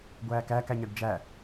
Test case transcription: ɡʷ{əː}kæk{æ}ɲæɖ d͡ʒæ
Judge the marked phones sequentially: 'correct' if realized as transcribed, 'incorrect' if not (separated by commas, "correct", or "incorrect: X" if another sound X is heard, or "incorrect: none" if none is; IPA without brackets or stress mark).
incorrect: æː, correct